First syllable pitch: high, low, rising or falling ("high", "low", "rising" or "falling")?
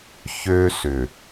high